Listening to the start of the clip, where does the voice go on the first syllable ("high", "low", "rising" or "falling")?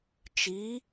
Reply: rising